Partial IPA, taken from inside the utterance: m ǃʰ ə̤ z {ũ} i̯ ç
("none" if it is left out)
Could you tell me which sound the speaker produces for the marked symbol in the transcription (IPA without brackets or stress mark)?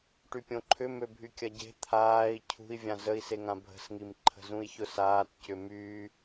ũ